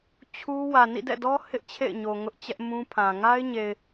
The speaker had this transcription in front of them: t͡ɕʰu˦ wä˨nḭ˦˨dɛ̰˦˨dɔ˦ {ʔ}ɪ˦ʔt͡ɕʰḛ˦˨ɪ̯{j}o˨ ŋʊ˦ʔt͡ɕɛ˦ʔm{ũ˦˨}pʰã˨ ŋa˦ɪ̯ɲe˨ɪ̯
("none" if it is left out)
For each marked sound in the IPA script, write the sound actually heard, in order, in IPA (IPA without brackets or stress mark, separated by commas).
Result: h, ɲ, ũ˦